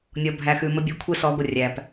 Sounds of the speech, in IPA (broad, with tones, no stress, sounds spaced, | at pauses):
nʲ ɔ˨ bʱ æ˨ x ʉ˨ m ə˦ bʲ ʉ˨˦ kʷʰ e˦ s ɔ˨˦ ɡʷ ə˨ rʲ æ˨ p